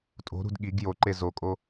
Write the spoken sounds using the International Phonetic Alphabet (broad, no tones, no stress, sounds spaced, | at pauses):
tʼ o̤ ɾ ṳ d ɠ i ɡ j o ǃ e z o kʼ o